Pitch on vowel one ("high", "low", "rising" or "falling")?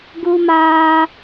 high